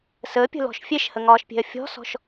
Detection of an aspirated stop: absent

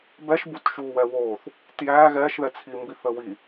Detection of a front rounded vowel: absent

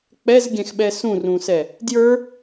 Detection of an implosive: present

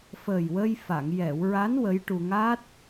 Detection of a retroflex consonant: present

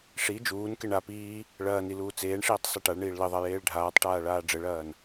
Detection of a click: absent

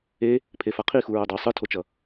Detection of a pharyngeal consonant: absent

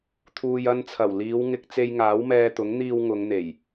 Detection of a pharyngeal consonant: absent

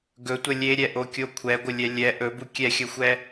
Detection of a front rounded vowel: absent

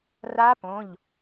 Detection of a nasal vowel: present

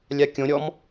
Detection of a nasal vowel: present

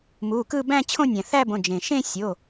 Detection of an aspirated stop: present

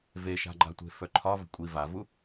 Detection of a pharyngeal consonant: absent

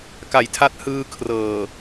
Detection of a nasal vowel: absent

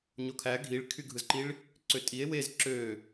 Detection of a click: present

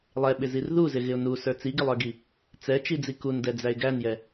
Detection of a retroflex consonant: absent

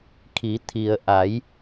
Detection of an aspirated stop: present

